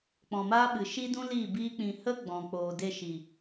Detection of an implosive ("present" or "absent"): present